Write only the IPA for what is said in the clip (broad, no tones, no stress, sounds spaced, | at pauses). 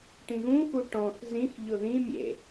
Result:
ʈ ĩ ɣ ũ x u ʈ ɔ̃ x z ĩ x ʎ ʊ ð ĩ mʲ ḛ